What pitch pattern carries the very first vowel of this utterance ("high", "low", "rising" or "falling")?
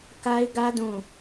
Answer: high